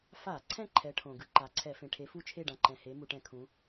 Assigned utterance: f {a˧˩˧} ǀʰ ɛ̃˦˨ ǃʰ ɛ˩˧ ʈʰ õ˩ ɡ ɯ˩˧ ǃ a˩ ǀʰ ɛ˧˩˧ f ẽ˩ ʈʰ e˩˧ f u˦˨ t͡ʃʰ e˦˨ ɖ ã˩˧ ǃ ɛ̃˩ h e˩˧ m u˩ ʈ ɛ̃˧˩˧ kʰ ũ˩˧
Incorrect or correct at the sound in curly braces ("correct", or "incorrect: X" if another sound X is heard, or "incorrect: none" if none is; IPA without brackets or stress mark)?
correct